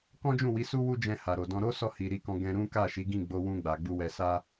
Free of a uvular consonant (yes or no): yes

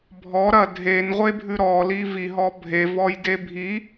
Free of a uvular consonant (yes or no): no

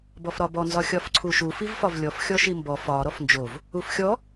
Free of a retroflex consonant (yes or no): yes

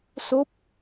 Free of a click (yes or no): yes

